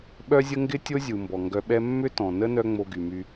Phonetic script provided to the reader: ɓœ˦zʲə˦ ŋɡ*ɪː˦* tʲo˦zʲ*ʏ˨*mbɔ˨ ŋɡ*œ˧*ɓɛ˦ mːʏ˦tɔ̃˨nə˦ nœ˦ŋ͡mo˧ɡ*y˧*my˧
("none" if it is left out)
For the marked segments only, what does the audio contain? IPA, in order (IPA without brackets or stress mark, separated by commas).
ɪ˦, u˨, œ˧, y˨